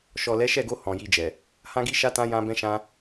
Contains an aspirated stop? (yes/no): no